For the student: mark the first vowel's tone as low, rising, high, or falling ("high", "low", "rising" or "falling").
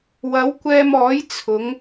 rising